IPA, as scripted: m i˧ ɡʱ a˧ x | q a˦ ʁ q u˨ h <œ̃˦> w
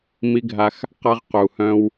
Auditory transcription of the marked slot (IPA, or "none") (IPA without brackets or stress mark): œ̃˦